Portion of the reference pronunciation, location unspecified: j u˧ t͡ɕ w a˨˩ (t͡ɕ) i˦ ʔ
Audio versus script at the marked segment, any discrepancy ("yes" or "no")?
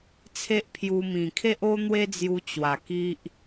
yes